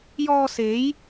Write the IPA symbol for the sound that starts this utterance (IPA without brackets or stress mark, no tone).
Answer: j